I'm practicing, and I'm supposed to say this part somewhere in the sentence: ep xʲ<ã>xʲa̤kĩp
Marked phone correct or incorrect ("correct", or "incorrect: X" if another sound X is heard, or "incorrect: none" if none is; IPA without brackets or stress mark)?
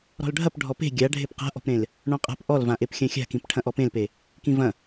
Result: incorrect: ɐ̃